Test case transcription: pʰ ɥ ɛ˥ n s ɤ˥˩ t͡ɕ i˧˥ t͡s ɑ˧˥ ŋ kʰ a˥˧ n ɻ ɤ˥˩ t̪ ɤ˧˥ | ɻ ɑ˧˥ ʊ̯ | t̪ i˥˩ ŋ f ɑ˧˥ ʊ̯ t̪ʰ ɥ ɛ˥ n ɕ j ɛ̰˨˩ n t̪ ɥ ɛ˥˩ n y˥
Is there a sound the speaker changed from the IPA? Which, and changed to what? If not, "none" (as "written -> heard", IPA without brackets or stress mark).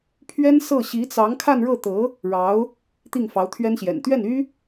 t͡ɕ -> ɕ